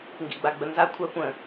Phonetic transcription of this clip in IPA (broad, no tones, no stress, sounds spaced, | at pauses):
ŋ ɡ ḭ ɡ͡b a ɡ͡b ə n z a kʷʰ a kʷ ə̃